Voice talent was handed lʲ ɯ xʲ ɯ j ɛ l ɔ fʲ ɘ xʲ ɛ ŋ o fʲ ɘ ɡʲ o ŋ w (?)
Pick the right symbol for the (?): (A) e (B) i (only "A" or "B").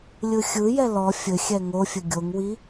B